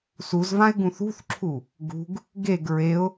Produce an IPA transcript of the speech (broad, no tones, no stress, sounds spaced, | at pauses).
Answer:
s u z v ã ɪ̯ ɡ ũ θ ṳ θ ǁʰ u | ɡ ṳ ɡ | ɡ e ɡ ɹ e ʊ̯